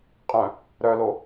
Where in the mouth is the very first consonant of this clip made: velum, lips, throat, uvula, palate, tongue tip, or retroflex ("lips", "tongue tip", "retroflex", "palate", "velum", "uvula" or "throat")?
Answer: uvula